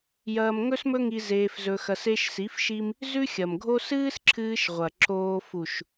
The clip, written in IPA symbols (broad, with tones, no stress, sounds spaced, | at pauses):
j ɐː˧ m ŋ ɵ˦ s m ɵ˦ ŋ i˧ z eː˧ f z ɵ˧ x ɐ˧ s e˧ ʃ s i˨˦ f ʃ i˧ m | z ʉ˦ xʲ ɐ˨ m ɡʱ o˦ s ɨː˦ s ǁʰ ɨː˧ ʃ ʁʷ ɐ˨ ǁ oː˧ f u˨ ʃ